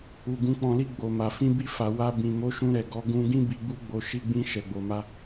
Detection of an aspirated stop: absent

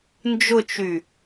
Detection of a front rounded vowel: present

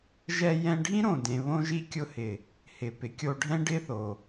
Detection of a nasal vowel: present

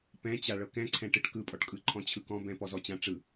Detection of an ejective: present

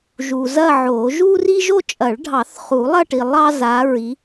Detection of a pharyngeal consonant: present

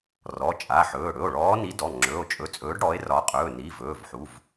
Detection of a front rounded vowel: absent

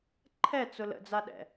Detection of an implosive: present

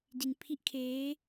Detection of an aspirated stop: present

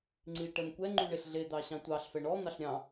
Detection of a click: present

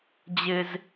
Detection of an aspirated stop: absent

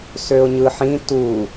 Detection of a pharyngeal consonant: present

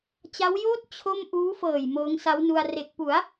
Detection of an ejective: absent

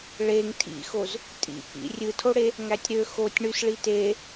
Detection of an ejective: present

